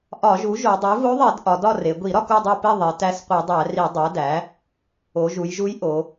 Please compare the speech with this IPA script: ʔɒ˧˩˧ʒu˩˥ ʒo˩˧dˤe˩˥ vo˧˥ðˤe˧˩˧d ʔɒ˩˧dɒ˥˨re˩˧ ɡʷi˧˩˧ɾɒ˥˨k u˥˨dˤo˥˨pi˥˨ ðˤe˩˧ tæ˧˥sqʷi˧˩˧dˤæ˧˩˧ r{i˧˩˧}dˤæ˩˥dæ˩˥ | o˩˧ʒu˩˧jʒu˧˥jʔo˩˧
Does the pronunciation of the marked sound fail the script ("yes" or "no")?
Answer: no